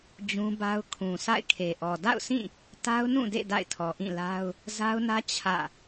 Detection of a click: absent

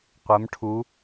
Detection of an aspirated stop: present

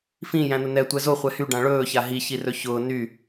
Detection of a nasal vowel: present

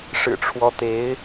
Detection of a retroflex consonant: present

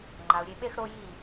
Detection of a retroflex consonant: present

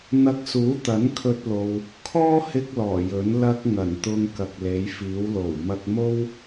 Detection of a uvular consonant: absent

